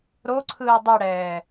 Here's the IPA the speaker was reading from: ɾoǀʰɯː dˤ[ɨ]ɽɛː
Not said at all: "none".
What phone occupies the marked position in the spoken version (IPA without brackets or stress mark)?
ɨ